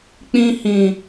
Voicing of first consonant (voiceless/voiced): voiceless